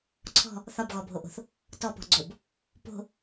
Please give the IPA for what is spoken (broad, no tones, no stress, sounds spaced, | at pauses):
ǀʰ ɔ̤ | θ ɒ b ɣ ɔ bʱ o ʔ o̤ θ | t ɔ p ɔ̤ ɡ͡ǀ o b | p o̤